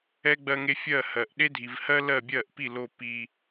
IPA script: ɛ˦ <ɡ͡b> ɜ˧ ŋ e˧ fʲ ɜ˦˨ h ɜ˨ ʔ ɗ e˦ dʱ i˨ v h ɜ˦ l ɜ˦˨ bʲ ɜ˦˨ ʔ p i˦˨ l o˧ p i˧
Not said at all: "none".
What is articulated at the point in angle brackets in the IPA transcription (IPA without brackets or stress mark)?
ɡ͡b